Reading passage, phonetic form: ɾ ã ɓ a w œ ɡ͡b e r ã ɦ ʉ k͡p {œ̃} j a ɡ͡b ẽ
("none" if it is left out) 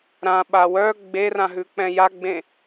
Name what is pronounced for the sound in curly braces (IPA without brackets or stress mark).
ɛ̃